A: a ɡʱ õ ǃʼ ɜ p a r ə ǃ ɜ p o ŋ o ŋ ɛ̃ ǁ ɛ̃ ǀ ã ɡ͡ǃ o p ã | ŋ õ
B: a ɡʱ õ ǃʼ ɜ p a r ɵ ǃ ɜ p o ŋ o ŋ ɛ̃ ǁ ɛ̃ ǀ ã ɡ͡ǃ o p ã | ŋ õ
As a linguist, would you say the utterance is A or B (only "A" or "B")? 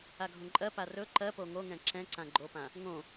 B